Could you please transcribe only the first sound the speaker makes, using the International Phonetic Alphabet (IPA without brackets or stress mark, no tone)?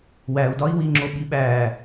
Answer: w